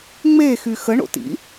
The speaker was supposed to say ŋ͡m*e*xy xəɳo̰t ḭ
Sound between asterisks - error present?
no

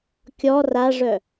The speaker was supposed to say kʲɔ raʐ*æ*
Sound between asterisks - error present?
yes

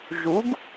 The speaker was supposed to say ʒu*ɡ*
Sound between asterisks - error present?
no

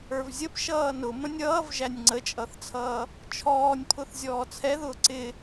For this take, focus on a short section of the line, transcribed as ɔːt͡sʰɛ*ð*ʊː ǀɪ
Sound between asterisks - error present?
no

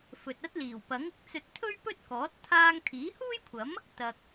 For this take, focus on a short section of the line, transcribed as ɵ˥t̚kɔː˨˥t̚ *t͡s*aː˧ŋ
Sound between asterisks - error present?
yes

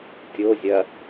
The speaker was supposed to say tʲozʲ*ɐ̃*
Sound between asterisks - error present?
yes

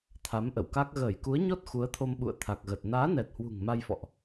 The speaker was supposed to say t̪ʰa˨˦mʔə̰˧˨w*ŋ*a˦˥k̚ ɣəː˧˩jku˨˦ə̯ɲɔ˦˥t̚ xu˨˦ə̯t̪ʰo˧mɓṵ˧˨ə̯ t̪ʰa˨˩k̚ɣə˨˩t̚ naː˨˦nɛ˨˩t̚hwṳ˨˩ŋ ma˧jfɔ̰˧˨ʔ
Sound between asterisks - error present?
yes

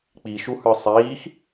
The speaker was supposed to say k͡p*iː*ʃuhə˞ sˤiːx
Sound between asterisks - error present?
yes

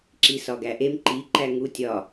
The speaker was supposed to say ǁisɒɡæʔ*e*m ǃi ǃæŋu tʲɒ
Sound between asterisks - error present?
no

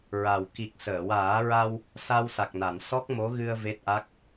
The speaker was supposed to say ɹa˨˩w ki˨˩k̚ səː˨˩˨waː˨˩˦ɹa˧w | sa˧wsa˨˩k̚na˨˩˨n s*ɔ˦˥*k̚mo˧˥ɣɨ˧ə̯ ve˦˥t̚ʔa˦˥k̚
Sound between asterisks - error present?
no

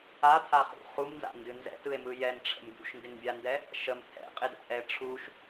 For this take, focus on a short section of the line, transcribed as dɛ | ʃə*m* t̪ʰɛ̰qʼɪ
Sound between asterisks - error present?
no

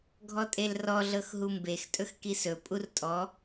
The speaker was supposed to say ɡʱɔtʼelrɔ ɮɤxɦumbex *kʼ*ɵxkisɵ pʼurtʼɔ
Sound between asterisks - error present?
yes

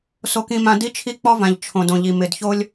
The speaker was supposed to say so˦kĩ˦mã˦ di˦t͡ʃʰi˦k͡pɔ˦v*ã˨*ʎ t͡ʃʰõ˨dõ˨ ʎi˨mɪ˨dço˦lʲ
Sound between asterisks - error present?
no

